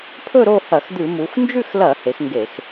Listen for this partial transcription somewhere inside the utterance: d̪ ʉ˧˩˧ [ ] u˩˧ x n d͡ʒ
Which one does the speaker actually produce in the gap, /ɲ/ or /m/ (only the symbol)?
m